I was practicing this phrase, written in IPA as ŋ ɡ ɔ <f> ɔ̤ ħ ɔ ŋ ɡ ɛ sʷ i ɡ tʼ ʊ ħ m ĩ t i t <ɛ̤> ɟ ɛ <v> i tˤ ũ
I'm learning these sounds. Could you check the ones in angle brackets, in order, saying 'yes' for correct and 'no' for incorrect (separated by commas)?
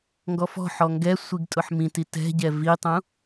yes, yes, yes